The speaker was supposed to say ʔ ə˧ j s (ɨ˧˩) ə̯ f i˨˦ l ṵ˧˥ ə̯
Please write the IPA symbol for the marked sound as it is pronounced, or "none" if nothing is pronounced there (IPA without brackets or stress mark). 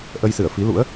ɨ˧˩